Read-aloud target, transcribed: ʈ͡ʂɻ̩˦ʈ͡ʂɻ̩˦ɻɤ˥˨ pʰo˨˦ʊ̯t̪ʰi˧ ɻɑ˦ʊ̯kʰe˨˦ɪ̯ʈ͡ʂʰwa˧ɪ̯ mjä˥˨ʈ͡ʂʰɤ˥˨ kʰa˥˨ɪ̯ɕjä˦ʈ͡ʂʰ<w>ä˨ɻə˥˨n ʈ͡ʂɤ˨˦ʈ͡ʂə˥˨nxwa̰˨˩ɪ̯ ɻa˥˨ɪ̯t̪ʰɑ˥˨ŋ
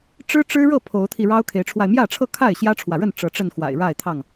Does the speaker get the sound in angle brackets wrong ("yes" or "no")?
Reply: no